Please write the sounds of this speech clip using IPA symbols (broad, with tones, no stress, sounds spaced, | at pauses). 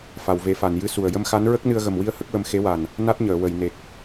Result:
f a˨˩˨ w v e˨˩˦ f a˨˩˨ n j ɨ˧˥ s u˨˩ ə̯ j ə˧˥ m x a˧˥ n ɹ ə˦˥ k̚ n ɨ˧ ə̯ ɣ ə˨˩ m w i˧ ə̯ h ə˦˥ k̚ w ə˧ m x e˧˥ w a˨˩ n | n a˦˥ t̚ ɲ əː˨˩˨ w ə˨˩˨ j n e˨˩ k̚